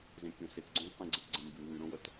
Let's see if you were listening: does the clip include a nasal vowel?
yes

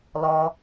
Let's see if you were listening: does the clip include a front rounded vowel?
no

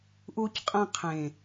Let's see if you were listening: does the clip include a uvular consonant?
yes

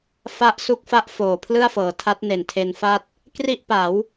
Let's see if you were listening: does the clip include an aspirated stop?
yes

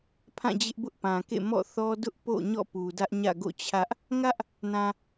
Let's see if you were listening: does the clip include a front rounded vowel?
no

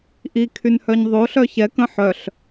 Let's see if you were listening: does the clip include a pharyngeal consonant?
yes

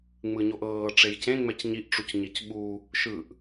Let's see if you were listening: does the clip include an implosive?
yes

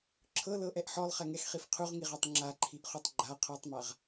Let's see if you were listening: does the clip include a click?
yes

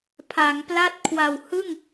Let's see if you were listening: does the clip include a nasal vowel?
no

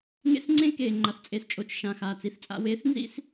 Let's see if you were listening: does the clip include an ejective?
yes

